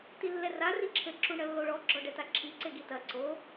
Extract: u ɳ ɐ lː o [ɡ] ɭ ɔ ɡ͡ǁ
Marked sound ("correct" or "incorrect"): incorrect